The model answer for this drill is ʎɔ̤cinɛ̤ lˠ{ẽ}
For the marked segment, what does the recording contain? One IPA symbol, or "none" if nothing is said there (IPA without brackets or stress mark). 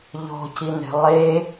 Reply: e